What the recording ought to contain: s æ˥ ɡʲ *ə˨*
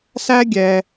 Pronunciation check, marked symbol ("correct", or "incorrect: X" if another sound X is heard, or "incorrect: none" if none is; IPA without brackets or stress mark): incorrect: ɛ˨